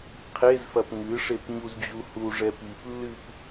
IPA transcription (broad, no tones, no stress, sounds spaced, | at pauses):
qʰ e z f ɐ p ŋ ɨ ʂ e p ɲ u z d͡ʑ u h u ʐ ɛ p i p lː ɨ p